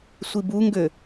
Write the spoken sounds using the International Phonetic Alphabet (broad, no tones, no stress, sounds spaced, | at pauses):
sʷ i b u ŋ ɡ ø